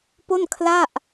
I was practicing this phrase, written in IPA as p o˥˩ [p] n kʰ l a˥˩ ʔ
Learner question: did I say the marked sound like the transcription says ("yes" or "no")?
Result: no